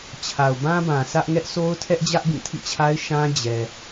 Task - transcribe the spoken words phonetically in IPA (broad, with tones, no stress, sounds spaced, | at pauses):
t͡ɕʰ a˨ ʊ̯ b ã˦ b ã˨ sʰ ä˦ ʔ ŋ ɛ˦ ʔ sʰ o˦ ʊ̯ tʰ ɛ˦ ʔ d͡ʑ ä˦ ʔ b ĩ˦˨ tʰ ḭ˦˨ t͡ɕʰ a˦ ɪ̯ ʃ ã˦ d͡ʑ ɛ˨